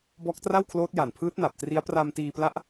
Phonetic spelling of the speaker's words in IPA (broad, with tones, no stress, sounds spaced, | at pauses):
b ɔː˦˥ k̚ t r a˥˩ w kʰ l oː˦˥ t̚ j a˨˩ n pʰ ɯː˦˥ t̚ n a˨˩ p̚ t r i˦˥ a̯ p r a˧ m t iː˧ p l a˦˥ ʔ